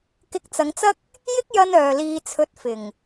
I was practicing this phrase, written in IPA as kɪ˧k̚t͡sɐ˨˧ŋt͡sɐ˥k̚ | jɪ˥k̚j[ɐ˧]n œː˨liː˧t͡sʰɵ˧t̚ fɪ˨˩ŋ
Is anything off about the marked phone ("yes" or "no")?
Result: no